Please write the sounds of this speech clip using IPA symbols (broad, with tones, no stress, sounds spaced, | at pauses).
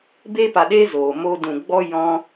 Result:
b eː˦ p a˨ ɗ eː˦ z oː˨ m oː˦ d ũ˨ ɡ͡b ɔ˦ j ɔ̃˦